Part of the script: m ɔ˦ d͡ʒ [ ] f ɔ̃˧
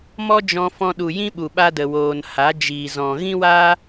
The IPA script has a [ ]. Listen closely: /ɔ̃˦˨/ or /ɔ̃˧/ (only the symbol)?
ɔ̃˧